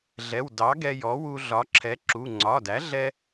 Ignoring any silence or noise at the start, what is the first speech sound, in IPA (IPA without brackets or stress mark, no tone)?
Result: ɮ